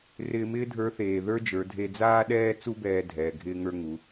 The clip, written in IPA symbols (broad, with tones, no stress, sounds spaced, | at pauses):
r ɪː˧ m ɪː˥ dʱ ə˞˧˥ θ eː˩ ð ə˞˥ d͡ʒ ə˞˩˧ dʱ e˧ d͡z aː˥ ɗ ɛː˥ t͡s u˥ b ɛː˧ dʱ ɛː˩ ɡʱ ɪː˧ ŋ ə˞˧ ŋ u˩˧